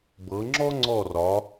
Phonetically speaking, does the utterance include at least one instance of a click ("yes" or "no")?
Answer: yes